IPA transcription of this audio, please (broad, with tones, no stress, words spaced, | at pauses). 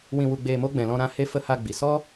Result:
wĩ˧wu˧ɡ͡beː˧mo˦ ɡ͡bɛ̃˨lɔ̃˧ɾã˦˨ he˦ fə˧ha˧ ɡ͡bi˨ sɔ˦